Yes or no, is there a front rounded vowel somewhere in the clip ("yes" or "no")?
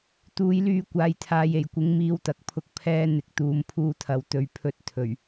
yes